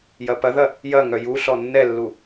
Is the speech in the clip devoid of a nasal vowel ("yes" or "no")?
yes